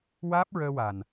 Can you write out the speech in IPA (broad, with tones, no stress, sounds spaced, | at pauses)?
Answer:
w aː˦˥ p̚ ɹ əː˧ w a˨˩ n